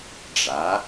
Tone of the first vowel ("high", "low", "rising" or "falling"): rising